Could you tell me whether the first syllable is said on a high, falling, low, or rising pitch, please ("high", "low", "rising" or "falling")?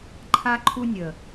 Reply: high